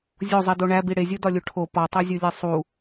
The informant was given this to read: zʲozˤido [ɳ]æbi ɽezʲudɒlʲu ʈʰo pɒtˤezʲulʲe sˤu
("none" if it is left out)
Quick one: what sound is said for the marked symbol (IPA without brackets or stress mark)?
ɳ